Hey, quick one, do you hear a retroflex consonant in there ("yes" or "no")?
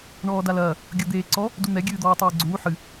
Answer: yes